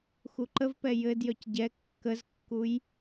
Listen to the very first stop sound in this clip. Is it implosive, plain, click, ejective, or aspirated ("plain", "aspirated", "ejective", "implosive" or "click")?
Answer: click